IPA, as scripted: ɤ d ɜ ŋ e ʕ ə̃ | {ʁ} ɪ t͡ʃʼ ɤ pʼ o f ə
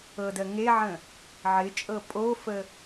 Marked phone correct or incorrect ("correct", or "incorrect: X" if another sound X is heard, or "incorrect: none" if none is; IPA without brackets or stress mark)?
incorrect: ʕ